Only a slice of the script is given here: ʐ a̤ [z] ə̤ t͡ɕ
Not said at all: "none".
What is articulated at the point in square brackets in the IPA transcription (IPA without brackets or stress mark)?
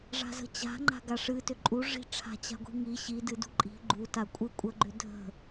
z